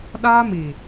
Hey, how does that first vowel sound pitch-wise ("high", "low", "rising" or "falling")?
high